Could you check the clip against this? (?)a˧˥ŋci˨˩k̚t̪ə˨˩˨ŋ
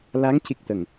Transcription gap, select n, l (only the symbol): l